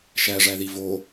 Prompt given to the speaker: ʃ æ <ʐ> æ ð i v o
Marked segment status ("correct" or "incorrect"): correct